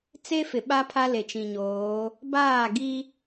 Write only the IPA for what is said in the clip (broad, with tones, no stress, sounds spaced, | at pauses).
t͡s e˦ f ɪ˨ ɓ a˦ pʰ a˦ l e˨ t͡ʃ ĩ˨ ɲ oː˨˦ | b aː˦˨ ɡ i˦